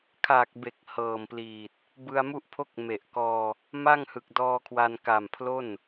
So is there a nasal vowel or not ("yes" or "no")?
no